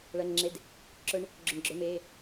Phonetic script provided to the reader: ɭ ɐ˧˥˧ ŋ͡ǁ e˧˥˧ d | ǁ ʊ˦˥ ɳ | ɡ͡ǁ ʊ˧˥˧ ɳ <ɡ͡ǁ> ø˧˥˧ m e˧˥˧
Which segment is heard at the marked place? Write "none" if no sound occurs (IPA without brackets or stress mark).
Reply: ɡ͡ǁ